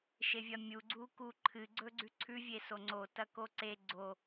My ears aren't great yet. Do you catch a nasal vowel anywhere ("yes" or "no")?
no